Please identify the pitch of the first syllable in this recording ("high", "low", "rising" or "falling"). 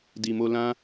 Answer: low